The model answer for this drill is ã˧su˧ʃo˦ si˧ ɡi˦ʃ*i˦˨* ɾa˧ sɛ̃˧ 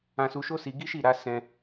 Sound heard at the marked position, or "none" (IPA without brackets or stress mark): i˦˨